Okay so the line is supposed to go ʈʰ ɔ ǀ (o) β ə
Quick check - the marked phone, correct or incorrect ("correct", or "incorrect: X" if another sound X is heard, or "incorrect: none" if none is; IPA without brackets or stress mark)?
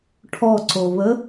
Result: correct